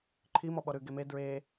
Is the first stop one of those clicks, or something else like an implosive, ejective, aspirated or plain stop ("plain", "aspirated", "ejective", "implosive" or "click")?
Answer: click